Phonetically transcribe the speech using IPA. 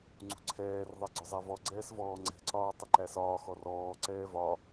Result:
ŋ͡ǀ ṳ ǀʰ ɛː r ðˤ ɛ ɡ͡ǀ ʊ zˤ æ v ɔ ɡ͡ǀ ɛː s v ɔː ŋ͡ǀ ɛ̤ ǀ ɒː tˤ ɪ ǃ æ s ɒː x ɔ r ɔː ǀ ɛː v ɒ

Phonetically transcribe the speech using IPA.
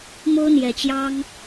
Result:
m o˦ ʊ̯ n̪ j ɛ˨˩ t͡ɕ j ɑ˦ ŋ

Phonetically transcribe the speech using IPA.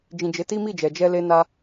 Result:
d͡ʒ ĩ˨ d͡ʒ e˨˦ t i˦ m i˦˨ d͡ʒ ɛ˨ d͡ʒ ɛ˧ l e˧ n a˧

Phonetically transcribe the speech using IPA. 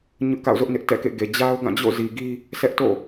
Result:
ɲ ʊ˦ ʔ k a̰˦˨ ʊ̯ z ʊ˦ ʔ n ɪ˦ ʔ t ɛ̰˦˨ k ḛ˦˨ ɡ e˨ d͡ʑ a˦ ʊ̯ ɡ ã˦˨ d͡ʑ o̰˦˨ z i˨ ɡ i˦ | s ɛ˦ ʔ t o̰˦˨

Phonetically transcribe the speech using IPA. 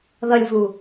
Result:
ð ʌ lʲ v u

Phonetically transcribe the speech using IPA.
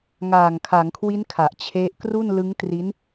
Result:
ŋ aː˨˩ ŋ kʰ a˩˦ ŋ kʰ w i˦˥ n kʰ a˨˩ ʔ t͡ɕʰ e˦˥ ʔ k r u˥˩ n l ɯ˦˥ ŋ t r i˦˥ n

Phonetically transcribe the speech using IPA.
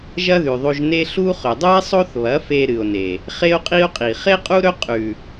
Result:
ʒ ɐ˦ ð ʉ˨ ðˤ o˧ ʒ n e˦ ɬ u˦ χ ɵ˨ dˤ ɨ˦ e̯ sˤ o˦ θ β ɐ˨˦ f e˧ ɾ ɨ˨ o̯ n e˨ | χ e˦ o̯ qʼ i˦ o̯ qʼ i˨ χ e˦ qʼ u˦ ɾ ɵ˦ qʼ ʉ˨

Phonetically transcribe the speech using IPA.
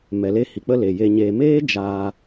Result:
m ɛ˨ l e˧ h i˨ k͡p ə˧ l e˨ j e˧ ɲ eː˧ m eː˦ d͡ʒ aː˧

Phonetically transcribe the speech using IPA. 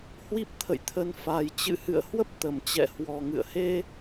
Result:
h w i˦˥ p̚ t̪ʰ ə̰˧˨ j t̪ʰ ə˨˦ n f a˨˩ j t͡ɕ ɨ̰˧˨ h ɨ̰˧˨ ə̯ h w ə˦˥ p̚ t̪ ə˧˩ m t͡ɕ ɛ̰˧˨ h w ɔ˨˩ ŋ ɨ̰˧˨ ə̯ h e˧

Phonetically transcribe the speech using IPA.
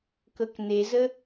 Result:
k ɤ k n e z ə

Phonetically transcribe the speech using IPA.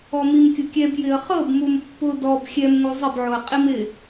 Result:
ɔ m i m kʲ ʊ kʲ ɛ b j ɪ ə̯ χ ɤ b m u m pː ʊ d ɔ b xʲ ɛ m ŋ u zˤ ɪ b ʕ o ə̯ qʼ i m ɪ

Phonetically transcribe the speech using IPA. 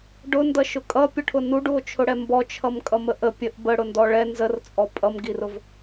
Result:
ɖ ʊ n d ʌ ʃ ʊ kʼ ʌ pʲ ʊ ʈʰ ʊ n u ɖ u o̯ t͡ʃʰ ʊ ɽ ɛ m b ɔ t͡ʃʰ ʌ m kʼ ʌ m ə ʔ ə pʲ ə ʔ b ə ɽ ʊ n d ɔ ɭ ɛ n z ə r t͡sʼ ɔ pʼ ʌ m ɡ i r ʊ v

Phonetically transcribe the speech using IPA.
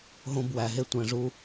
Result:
ɦ õ˧ b w æ˨ ɦ e˧ tʷ æ̃˨ ʐ u˧

